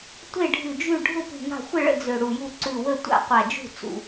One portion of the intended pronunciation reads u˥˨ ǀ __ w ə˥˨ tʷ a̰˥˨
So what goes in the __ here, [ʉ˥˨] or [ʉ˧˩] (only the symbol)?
ʉ˧˩